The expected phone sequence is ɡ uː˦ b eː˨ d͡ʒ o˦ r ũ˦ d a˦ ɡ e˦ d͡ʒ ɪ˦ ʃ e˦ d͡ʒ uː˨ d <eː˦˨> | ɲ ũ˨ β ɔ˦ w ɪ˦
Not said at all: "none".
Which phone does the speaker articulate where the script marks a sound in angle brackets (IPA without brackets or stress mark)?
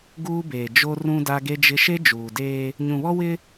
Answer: eː˦